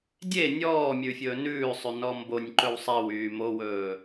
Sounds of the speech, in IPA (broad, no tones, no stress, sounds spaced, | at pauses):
dʲ e nʲ ɔː mʲ ʉ fʲ ɵː n ʉː sˤ y n ɔ m b o nʲ ǃ ɵ w sˤ e w yː m o w ɵː